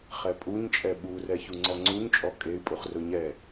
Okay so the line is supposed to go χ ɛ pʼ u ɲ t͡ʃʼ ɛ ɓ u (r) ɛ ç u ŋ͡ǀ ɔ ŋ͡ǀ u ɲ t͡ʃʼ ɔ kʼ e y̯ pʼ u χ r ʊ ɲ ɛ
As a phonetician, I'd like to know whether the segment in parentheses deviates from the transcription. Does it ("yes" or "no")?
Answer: no